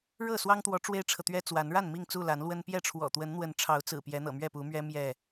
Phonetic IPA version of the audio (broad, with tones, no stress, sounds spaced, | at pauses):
ɻ ɤ˥˨ s w ɑ˦ ŋ t̪ w ɔ˨˦ ʈ͡ʂ w e˦ ɪ̯ ʈ͡ʂʰ ɤ˨ t̪ ɥ ɛ˦ t͡s w a˨˦ n ɻ a˥˨ n m i˥˨ ŋ t͡s u˥˨ l a˨˦ n l w ə˦ n p j ɛ˥˨ ʈ͡ʂʰ w ɔ̰˨˩ t̪ w ə˨˦ n n̪ w ə˨˦ n ʈ͡ʂʰ ɑ˨˦ ʊ̯ t͡s ɹ̩˨˩ p j ɛ˨˦ n̪ ɤ̰˨˩ m ɥ ɛ˥˨ p u˨˦ m ɥ ɛ˦ m j ɛ˥˨